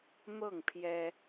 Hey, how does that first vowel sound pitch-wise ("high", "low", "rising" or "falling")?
falling